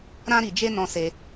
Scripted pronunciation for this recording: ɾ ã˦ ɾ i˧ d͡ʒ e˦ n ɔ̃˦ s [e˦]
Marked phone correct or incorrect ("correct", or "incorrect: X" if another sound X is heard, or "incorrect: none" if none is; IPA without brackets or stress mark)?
correct